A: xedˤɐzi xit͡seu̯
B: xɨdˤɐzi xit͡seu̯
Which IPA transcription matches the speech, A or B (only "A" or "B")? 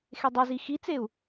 A